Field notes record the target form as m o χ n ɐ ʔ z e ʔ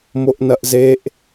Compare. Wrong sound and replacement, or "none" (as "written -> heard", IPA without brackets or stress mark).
χ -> ʔ